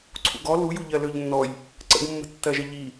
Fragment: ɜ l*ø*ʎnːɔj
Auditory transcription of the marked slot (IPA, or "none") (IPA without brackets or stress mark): ø